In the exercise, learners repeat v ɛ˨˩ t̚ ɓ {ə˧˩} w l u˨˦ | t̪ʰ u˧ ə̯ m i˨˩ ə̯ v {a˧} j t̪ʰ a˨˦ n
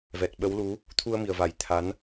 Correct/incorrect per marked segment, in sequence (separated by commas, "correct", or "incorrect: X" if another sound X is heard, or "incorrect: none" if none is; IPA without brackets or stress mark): incorrect: ə˨˦, incorrect: a˧˩